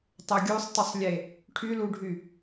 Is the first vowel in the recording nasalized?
no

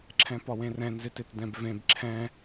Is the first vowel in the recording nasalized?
yes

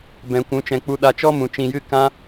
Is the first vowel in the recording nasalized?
yes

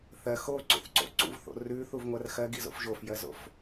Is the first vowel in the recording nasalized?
no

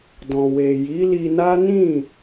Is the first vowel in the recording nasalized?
yes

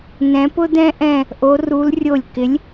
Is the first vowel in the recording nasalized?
yes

